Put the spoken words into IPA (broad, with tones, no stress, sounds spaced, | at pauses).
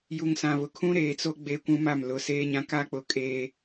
j u˨ ŋ s ã˨ β ʊ˨ kʰ ũ˦ ɾ eː˨ t͡s o˦ ɡ͡b eː˦ kʷ ũ˦ m a˦˨ m l ʊ˨˦ s eː˦ ɲ ã˦ k a˦ k͡p ʊ˨ kʼ eː˦